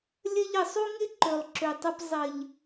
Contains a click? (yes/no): yes